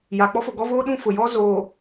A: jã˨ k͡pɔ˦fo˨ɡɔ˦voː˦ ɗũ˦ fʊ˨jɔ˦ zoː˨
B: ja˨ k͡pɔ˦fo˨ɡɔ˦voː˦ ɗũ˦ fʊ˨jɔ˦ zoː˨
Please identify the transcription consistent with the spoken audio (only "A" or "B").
B